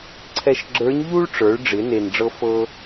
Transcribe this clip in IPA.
ǀʰ ɛ˧ ʃ ɡ͡ǁ ə˞˧˥ ɲ ʎ u˥ ɭ ʈ͡ʂ ə˞˩˧ ɭ ɖ͡ʐ ɪ˩˧ n e˩ n ɖ͡ʐ ɤ˧ f ɤ˥

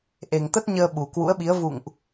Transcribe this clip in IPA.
ʔ e˨˩ ŋ t̪ ə˦˥ t̚ ɲ əː˧ ɓ u˨˩ k w ṵ˧˥ ə̯ ɓ i˨˦ ə̯ v ṵ˧˨ ŋ ʔ

